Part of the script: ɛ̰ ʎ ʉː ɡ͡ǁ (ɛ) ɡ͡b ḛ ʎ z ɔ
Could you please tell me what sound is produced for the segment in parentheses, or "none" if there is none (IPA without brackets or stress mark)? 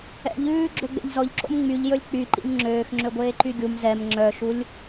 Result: ø